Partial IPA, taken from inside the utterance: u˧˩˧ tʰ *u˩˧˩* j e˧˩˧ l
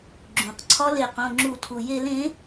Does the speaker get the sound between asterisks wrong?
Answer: yes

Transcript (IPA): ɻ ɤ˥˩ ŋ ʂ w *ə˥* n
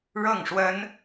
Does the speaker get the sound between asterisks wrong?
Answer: no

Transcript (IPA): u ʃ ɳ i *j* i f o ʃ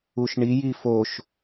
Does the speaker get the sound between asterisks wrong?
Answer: no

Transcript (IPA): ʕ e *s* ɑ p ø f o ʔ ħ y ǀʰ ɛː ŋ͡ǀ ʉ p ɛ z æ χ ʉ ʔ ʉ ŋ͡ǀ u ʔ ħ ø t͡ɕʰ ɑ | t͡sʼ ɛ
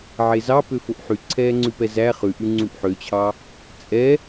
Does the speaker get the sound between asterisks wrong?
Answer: yes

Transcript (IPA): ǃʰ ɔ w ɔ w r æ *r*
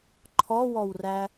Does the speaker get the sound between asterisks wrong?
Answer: yes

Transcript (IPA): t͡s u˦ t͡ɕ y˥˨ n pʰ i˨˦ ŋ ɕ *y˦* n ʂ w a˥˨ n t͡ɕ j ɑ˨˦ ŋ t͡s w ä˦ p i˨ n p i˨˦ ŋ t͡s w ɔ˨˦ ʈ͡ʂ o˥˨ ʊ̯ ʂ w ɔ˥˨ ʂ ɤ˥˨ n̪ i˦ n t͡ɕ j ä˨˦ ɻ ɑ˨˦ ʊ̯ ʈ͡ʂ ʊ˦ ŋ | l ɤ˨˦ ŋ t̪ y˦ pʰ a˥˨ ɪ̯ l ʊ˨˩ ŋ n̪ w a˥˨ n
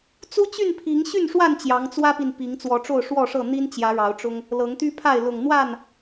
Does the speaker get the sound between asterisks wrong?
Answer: yes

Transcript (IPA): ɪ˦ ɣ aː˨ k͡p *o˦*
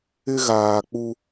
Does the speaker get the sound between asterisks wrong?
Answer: yes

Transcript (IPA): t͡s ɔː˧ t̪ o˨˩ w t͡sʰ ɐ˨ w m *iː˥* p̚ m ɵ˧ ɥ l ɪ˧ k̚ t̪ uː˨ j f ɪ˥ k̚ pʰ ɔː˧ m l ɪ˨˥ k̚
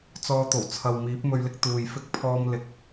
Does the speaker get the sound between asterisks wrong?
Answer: yes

